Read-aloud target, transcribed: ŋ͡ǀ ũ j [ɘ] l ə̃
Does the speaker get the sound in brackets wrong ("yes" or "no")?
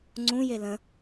yes